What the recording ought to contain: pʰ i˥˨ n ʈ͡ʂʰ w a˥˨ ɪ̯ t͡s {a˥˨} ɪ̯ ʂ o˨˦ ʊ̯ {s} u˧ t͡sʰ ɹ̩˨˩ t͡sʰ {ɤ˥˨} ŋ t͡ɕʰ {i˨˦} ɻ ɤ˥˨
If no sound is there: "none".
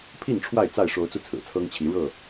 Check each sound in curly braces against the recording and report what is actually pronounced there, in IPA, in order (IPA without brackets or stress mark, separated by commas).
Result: a˥˨, t͡s, ɤ˦, i˨˦